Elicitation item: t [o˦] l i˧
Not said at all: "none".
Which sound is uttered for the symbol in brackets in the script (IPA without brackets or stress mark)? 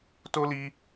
o˦